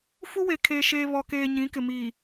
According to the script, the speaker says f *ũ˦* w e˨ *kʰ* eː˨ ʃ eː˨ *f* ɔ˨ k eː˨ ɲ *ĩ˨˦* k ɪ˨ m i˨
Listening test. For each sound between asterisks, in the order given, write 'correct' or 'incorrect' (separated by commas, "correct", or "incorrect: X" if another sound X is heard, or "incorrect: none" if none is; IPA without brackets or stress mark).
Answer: incorrect: u˦, correct, incorrect: β, correct